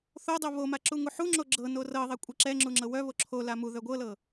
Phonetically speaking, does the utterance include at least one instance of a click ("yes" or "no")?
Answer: yes